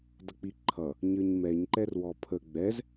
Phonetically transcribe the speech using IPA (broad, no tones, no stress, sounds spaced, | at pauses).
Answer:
d ʌ k͡p i ǃʰ ʌ | ɲ ə˞ ɲ m ɛ ɲ ǃ ɛ r w ɔ pʰ ə ɡ͡b ɛ z